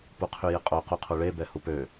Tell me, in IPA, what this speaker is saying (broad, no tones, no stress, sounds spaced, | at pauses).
p u qʰ y j ɪ qʼ o q u qʰ u ɭ e b ɛ h u p ø